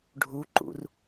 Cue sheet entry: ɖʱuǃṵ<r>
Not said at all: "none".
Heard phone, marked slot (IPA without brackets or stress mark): r